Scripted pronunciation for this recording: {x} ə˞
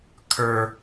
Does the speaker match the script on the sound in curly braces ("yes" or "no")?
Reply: no